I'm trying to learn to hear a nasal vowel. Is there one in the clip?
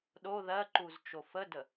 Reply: no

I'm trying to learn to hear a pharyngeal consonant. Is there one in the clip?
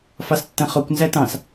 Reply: no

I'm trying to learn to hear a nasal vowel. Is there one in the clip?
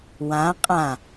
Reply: yes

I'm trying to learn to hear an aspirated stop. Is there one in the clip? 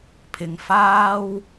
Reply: yes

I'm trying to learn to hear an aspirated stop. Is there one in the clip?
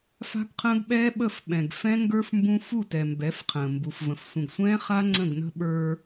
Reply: yes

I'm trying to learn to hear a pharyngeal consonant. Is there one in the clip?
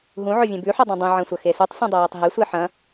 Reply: yes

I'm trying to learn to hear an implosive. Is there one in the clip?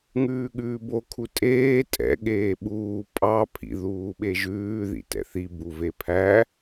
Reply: yes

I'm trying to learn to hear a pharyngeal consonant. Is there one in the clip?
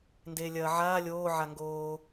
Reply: yes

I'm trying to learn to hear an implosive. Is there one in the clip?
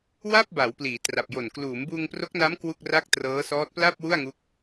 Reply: no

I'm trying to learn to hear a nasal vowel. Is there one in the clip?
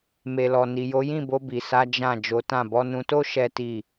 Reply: yes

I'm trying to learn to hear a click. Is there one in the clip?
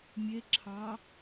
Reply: yes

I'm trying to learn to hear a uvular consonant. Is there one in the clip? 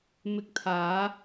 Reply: no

